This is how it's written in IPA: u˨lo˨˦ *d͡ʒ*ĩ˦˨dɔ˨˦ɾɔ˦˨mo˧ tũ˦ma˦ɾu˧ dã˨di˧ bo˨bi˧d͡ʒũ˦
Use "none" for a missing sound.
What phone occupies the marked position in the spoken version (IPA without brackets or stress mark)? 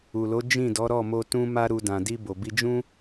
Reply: d͡ʒ